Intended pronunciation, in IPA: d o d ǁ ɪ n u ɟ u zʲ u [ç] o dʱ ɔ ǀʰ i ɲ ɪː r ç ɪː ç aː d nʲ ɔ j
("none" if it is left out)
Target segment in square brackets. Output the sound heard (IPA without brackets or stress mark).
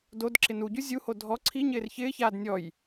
h